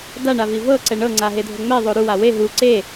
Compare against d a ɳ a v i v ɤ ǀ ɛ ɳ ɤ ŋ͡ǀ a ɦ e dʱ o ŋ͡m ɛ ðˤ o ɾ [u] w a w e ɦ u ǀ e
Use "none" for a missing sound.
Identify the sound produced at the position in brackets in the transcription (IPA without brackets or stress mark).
u